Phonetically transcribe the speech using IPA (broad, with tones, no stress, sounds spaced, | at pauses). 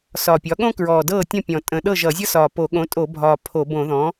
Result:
s ɒː˨˩ pʲ ɒ˩˥ ɠ õ˥ k ɹ ɔː˨˩ d ɤː˥˩ tʲ ɔ̃˥˩ pʲ ɔ̃˨˩ tʼ ə̃˨˩ ɗ ɤ˥˩ ʒ ʌ˧˩˧ zʲ ʌ˥ s ɒː˨˩ p o˧˩˧ ɠ õ˩˥ tʼ o˧˩˧ bʱ ɒː˨˩ pʰ o˧˩˧ b õ˧˩˧ ð ɔ̃˩˥